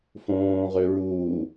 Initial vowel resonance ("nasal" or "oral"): nasal